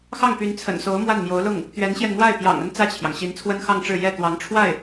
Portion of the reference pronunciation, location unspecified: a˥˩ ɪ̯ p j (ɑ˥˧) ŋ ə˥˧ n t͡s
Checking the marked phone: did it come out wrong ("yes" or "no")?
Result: yes